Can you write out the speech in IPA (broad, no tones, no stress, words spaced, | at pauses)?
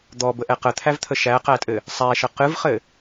d̪ɔbəʔɛ qət̪ʰævt̪ʰə ʃæqætʼɘ | sˤæʃə qɨvχɘ